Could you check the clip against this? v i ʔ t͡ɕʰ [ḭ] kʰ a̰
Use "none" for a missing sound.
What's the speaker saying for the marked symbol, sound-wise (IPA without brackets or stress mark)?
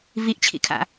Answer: ḭ